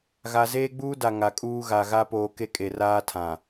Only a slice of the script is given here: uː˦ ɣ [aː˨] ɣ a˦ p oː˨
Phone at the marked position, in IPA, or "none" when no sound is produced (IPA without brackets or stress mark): a˨